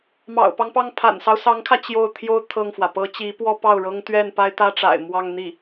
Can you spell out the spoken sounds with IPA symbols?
m ɑ̰˨˩ ʊ̯ p ɑ˦ ŋ p ɑ˥˩ ŋ pʰ a̰˨˩ n s ɑ˦ ʊ̯ s ɑ˧˥ ŋ kʰ ä˧ t͡ɕ j o˥˩ ʊ̯ t̪ʰ j o˥ ʊ̯ t̪ʰ ɤ˥˩ ŋ f w ä˩ p ɤ˧˥ t͡ɕ i˧˥ p w ɔ˥ p ɑ˥˩ ʊ̯ ɻ ɤ˥ ŋ t̪ ɥ ɛ˥˩ n p a˥ ɪ̯ t̪ ä˥ ʈ͡ʂ a̰˨˩ ɪ̯ m w ɑ˥˧ ŋ n̪ i˥˩

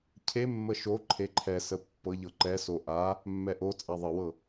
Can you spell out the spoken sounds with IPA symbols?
cʰ e mː ə ʃ o ǃʰ e ǃʰ ɛ s ə pː ɤ ʎ ɤ ǃ ɛ s o ʔ a | mː ɛ ʔ o t͡sʼ a ðˤ ə w ɤ

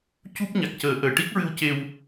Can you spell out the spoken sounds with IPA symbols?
c u˦˥ p̚ ɲ a˨˩ k̚ c əː˨˩˦ ʔ əː˨˩ ʈ i˦˥ k̚ ɹ ɨ˧ w c e˧ w

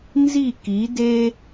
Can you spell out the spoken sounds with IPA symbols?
n z i˦˨ k i˨˦ d e˦

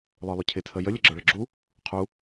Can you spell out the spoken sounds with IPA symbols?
lˠ ə˞ lˠ ʊ cʰ ɪ tʰ ə j ə lʲ ə ɡ͡ǁ ə˞ ɭ ə ɡ͡ǁ u | qʰ u

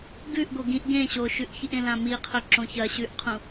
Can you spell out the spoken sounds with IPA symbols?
ɡ ʉ ʔ ɡ o ɡ ĩ ʔ ɡ ẽ ɕ o ʃ ʉ ʔ ç i ʔ ẽ l ã m i qʰ ɵ ǁ õ ç ɐ ɕ ʉ ʔ qʰ ũ

